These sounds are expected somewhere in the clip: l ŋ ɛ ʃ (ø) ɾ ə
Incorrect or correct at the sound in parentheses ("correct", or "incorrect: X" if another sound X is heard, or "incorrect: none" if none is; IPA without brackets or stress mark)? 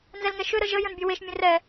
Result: correct